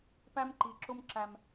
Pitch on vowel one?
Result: high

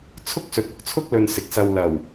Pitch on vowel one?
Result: high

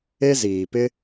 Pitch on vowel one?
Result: high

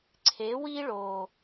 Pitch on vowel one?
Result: rising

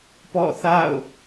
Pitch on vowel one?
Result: falling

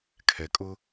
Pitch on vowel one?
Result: low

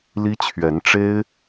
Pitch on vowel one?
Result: high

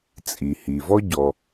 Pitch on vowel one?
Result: low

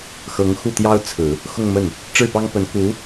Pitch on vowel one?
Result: rising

